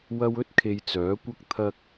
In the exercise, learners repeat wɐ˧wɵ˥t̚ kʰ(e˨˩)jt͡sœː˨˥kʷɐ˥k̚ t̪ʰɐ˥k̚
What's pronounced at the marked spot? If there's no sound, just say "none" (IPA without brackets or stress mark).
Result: e˧